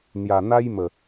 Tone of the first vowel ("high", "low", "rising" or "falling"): low